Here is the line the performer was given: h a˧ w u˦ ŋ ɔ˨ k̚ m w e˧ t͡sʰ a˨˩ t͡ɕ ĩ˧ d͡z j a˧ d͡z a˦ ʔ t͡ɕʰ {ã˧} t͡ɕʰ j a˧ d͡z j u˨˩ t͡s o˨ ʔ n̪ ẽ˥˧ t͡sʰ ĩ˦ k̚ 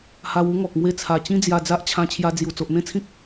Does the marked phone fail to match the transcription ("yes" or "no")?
no